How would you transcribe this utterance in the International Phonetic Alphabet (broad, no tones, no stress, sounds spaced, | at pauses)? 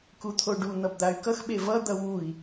k u t̪ʰ o ɖ u n̪ ʌ b d̪ a y̯ k ʌ x ɓ e v ʌ d̪ ʌ w u i̯